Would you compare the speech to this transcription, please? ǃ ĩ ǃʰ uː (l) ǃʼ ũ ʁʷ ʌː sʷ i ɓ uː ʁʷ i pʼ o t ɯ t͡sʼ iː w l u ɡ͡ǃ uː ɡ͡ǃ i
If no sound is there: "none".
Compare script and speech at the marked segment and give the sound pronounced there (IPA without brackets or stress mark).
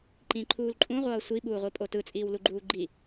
l